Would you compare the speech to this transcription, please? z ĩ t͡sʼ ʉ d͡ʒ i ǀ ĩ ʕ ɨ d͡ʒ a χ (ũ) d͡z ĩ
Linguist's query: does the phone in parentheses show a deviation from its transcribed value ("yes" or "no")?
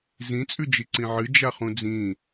no